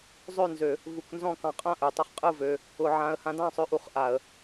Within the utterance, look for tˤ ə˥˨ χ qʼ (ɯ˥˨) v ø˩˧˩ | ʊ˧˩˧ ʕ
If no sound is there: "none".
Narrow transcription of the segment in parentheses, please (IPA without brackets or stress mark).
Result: ɯ˥˨